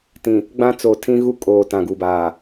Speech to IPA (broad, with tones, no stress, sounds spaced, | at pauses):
t ĩ˨ | ɡ͡b ã˦ t͡s o˨ tʰ ĩ˦ ɣ u˦ kʼ oː˨ t ã˨ ɡ u˨ b aː˨